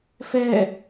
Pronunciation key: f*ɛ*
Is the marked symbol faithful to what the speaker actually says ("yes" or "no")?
yes